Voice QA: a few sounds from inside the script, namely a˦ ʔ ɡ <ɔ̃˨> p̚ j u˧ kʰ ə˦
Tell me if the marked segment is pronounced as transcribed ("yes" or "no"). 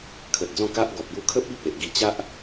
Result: no